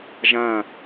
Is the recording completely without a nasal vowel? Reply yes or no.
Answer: no